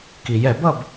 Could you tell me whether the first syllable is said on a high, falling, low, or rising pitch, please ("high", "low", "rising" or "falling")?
low